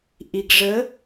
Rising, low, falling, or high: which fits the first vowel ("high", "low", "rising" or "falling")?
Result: low